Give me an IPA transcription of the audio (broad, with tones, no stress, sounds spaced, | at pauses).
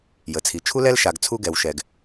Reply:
j ə˩ t͡sʰ i˩ t͡ʃʰ u˥ l ɛ˥ l ʃ a˩ ɡ t͡sʰ u˧ ɡ ɛ˩ w ʃ ɛ˩ ɡ